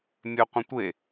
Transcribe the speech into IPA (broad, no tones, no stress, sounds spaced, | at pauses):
mʲ œ qʷ ə̃ tʷ e